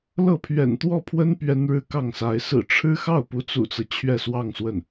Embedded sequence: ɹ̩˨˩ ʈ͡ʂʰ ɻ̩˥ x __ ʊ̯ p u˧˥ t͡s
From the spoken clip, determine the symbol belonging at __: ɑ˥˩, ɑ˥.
ɑ˥˩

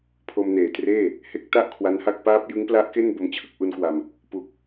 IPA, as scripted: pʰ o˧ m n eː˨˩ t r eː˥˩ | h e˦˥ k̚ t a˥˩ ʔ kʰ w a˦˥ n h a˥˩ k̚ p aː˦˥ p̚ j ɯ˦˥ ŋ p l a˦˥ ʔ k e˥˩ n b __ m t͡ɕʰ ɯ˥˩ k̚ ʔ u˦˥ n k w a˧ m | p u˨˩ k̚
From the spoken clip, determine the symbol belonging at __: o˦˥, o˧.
o˦˥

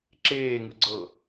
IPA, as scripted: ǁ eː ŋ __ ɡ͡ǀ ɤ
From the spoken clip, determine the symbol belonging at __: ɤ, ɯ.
ɯ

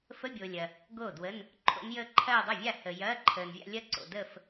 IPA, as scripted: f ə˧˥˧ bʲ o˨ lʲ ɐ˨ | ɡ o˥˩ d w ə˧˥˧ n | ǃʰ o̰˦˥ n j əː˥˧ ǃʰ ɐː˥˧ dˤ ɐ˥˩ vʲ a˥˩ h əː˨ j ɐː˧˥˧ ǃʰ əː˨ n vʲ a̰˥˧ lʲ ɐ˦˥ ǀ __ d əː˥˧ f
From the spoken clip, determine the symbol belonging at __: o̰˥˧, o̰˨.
o̰˨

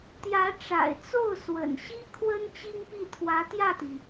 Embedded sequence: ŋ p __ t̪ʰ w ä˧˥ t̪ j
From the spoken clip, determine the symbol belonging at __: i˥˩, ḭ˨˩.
i˥˩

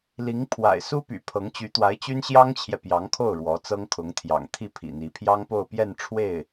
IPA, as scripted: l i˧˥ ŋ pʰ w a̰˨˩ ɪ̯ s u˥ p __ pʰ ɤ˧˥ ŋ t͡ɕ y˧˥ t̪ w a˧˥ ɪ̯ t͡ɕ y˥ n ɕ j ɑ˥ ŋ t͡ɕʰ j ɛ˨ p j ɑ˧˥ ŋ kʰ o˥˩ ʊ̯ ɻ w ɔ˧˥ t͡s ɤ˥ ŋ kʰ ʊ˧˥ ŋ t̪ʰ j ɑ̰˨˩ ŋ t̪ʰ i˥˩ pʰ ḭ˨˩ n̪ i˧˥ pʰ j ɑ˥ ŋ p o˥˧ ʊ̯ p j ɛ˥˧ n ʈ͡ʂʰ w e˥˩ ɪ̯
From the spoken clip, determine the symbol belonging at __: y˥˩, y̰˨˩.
y̰˨˩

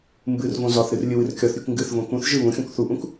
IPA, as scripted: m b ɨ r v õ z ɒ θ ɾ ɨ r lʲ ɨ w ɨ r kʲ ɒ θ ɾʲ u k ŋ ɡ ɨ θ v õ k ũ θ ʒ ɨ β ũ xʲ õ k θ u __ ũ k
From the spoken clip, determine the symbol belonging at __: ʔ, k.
ʔ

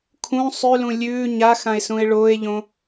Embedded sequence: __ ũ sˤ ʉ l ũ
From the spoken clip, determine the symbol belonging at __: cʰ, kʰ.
kʰ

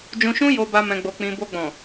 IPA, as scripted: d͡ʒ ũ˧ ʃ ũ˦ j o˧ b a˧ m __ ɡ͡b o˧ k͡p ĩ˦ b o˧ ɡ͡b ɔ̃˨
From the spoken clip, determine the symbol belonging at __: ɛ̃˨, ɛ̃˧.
ɛ̃˧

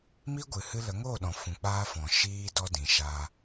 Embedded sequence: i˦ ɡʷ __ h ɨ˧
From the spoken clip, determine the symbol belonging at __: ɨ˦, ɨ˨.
ɨ˨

